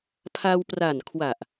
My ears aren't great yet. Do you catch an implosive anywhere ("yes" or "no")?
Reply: no